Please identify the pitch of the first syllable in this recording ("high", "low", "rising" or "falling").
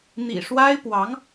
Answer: low